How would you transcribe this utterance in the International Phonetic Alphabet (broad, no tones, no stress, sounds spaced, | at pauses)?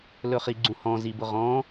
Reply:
l ɵ χ i ɡ͡ǀ ũ h ɔ̃ z i b ʊ ʁ ɔ̃